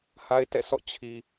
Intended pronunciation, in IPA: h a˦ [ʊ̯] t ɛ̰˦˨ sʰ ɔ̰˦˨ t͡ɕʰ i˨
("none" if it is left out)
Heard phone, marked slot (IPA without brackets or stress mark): ɪ̯